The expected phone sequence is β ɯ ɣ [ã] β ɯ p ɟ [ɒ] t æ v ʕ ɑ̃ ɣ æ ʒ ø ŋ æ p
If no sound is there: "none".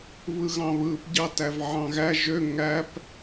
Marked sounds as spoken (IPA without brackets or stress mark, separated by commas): ɑ̃, ɑ